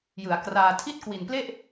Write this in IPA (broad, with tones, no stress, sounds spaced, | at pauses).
j ɯ˩˦ a̯ k r aː˧ tʰ i˥˩ t̚ k w i˨˩ n p l e˥˩ ʔ